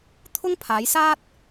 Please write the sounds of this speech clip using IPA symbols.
t̪ʰ ʊ˥ ŋ pʰ aː˨˧ j s aː˥ t̚

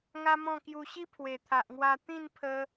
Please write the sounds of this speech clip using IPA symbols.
ŋ a˦ m ɔ̃˥˧ k j u˧ ɕ i˦ pʰ w e˨˩ t̪ʰ a˨ ʔ ŋ w a˧ t̪ ĩ˥˧ n pʰ ə˧

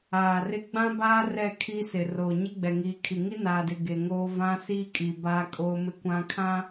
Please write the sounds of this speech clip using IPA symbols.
aː˨ r ɪ˦ ɡ͡b ã˦ b aː˦ r ɛ˦˨ kʰ iː˦ s ɪ˨ r oː˨ ɲ ɪ˦ ɡ͡b ɛ˨ ŋ iː˨ kʰ i˨ ŋ i˦ n aː˨ d ɪ˨ ɡ e˨ ŋ oː˦ v ã˦ s iː˦ kʼ i˨ b aː˦ kʼ oː˦ m ɪ˦ kʷ ã˦ kʰ ã˦

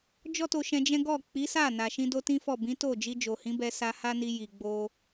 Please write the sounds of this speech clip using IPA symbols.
d͡ʒ ɔ˦ t o˧ ʃ ɛ̃˧ d͡ʒ ɛ̃˦ ɡ ɔ˦˨ k͡p i˨˦ s a˦˨ n a˨ ʃ ĩ˧ d o˧ t ĩ˦ f ɔ˦˨ b ĩ˨˦ t o˦˨ d͡ʒ i˧ d͡ʒ o˨ h ĩ˨˦ b ɛ˧ s a˧ h a˦ n i˧ j i˨ ɡ͡b o˧

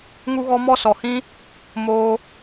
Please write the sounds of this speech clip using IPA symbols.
ŋ u˦ ɣ ɔ˦ m ɔ˦ s ɔ˨ h ĩ˦ | m oː˧

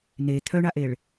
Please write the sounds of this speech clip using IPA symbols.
n e t̪ʰ œ ɳ a ʔ e ɭ

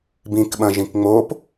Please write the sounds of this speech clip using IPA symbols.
b ĩ k ɓ ɐ̃ ʒ ĩ k ŋ͡m o p

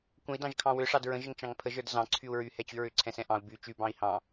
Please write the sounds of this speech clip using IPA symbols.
kʷ ə̃ i̯ d ɑ̃ ʒ kʰ ɑ̃ w ʏ ʂ ɑ d ɹ ə̃ ʒ ə ŋ t͡ʃ ɑ̃ ŋ pʰ ə ʒ ə˞ d z ɑ̃ ǀʰ y u̯ ɹ y h ɛ t͡ɕ y ɹ ʏ ǀʰ ɛ̃ s ɛ̃ ʔ ɑ̃ u̯ b y t͡ʃ y b ɑ̃ i̯ h ɑ̃

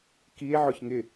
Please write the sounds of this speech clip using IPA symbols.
k i e̯ ʕ ʊ ç ŋ ɪ

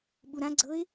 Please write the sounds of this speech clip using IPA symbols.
ɓ u ɾ ã ɡ͡ǀ ɤ ɪ̯

